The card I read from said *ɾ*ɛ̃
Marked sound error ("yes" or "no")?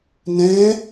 yes